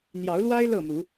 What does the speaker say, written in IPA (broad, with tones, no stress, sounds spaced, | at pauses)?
n̪ j ɑ˨˦ ʊ̯ l w a˦ ɪ̯ l ɤ˥˨ m u˨˦